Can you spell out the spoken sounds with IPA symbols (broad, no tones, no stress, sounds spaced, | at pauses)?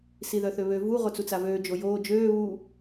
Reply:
s i ð œ θ ø β ø v u ʁ o t͡s u t͡s a v øː d͡ʒ o j oː d͡ʒ øː β u